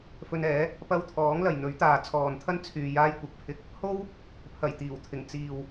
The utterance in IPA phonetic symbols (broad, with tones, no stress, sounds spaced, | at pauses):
f ɵ˧ n ɛː˨˥ | p ɐ˧ w t̪ʰ ɔː˨˥ ŋ l ɐ˨ j n̪ ɵ˨˥ ɥ t̪ aː˨ t͡sʰ ɔː˨ n t̪ʰ ɐ˥ n t͡sʰ yː˧ j aː˥ j kʷ ɐ˨˥ k̚ pʰ ɪ˧ k̚ | h o˥ w | pʰ ɐ˨˩ j t̪ iː˨˩ w t̪ʰ ɪ˨˩ ŋ t͡s iː˨ w